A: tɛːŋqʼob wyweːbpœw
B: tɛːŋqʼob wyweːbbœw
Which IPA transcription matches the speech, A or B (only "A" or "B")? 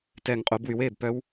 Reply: A